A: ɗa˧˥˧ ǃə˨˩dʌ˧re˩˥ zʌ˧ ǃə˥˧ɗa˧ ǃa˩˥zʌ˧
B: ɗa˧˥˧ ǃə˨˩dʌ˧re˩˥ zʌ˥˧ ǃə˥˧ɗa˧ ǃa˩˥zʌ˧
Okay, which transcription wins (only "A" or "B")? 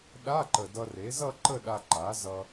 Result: B